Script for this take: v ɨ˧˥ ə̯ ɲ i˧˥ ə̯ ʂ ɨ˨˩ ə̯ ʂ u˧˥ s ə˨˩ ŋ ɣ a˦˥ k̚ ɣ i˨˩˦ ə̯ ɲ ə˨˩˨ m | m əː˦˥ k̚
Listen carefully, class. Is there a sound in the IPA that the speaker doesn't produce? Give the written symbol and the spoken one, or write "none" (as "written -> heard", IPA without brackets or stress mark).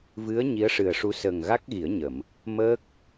none